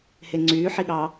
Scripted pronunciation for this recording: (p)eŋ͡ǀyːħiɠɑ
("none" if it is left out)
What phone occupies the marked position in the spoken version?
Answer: h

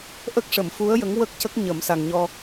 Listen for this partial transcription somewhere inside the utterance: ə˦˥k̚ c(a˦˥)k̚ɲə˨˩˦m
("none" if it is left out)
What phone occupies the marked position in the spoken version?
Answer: ə˦˥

